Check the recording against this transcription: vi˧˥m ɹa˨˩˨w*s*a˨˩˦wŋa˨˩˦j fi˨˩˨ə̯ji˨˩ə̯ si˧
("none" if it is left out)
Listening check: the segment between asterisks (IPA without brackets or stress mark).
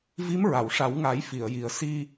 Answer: ʂ